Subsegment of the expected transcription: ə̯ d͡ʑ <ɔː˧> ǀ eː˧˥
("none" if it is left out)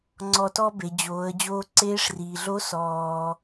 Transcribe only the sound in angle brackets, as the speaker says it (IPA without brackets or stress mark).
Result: oː˧